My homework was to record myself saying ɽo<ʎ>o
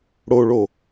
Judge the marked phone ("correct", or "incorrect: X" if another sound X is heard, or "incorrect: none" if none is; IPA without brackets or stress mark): incorrect: ɭ